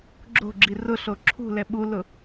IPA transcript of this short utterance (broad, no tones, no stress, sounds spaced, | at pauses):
ɡ͡ǁ o̤ ɡ͡ǁ i r ʊ ɬ o ǁʰ ṳ l ɛ ɓ u l ʊ